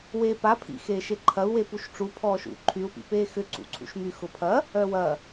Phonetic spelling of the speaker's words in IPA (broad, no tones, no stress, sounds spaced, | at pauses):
w eː p a pʰ ḭ x eː ʃ e ǃʰ ɐ u̯ w e p u ʃ ʈ͡ʂ u pʰ ɔː ʃ ṵ ǃʰ y u̯ p ḭ p eː x ʏ ǀ ṵ ǀʰ ṵ ʃ m y x ʊ pʰ ɐ | œ w ɐ